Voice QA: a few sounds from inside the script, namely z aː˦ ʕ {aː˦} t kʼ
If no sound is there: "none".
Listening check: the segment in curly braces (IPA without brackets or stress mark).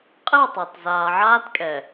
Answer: aː˦